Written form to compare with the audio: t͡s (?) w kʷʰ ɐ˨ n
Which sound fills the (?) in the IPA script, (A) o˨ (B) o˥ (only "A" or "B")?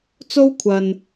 B